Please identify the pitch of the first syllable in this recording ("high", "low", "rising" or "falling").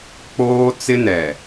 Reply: high